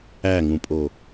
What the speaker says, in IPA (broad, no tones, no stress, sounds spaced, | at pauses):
æ ŋ ũ pʼ o